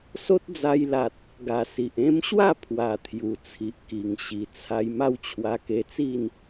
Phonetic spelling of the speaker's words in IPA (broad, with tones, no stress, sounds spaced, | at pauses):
s o˦ t̚ d͡z a˧ j l a˨ t̚ | ɡ a˨˩ s i˨ ʔ ẽ˧ m ɕ w a˥˧ pʰ w a˨˩ t̪ʰ j u˨˩ t͡sʰ i˨ ʔ k i˨˩ ŋ ɕ i˨˩ t͡sʰ a˧ j m a˥˧ w t͡ɕʰ w a˧ k e˧ t͡s i˥˧ n